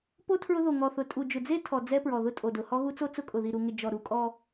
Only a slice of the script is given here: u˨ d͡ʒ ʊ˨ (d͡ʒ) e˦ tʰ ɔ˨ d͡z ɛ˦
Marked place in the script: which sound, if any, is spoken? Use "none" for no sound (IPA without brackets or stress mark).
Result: d͡z